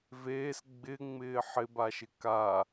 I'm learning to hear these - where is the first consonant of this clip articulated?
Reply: lips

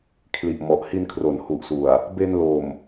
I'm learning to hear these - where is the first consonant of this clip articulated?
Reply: velum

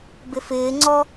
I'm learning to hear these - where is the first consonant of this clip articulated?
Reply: lips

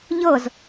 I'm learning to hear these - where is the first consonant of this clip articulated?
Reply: palate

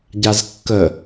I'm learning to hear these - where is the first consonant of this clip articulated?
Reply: palate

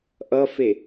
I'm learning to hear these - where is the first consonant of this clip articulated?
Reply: throat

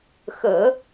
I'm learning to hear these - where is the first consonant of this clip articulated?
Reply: velum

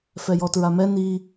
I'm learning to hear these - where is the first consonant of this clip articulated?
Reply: lips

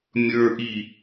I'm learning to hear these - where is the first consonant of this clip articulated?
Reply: lips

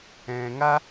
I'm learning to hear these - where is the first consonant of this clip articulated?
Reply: velum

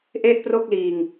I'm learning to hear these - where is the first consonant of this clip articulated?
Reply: throat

